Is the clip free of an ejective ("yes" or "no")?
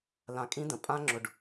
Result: no